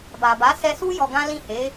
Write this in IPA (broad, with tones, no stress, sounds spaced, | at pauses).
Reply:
b a˨ b a˨˦ s ɛ˧ s u˦ j ɔ˧ ɡ ã˦ l ĩ˦˨ h e˨˦